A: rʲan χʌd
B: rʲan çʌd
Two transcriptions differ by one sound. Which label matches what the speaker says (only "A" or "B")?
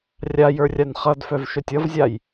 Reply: A